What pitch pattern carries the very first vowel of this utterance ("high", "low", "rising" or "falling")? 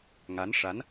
rising